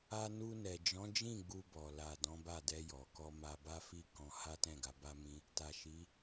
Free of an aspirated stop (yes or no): yes